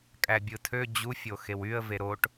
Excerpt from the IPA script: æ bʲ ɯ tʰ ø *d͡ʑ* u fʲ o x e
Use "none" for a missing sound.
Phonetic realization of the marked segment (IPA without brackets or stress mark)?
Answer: d͡ʑ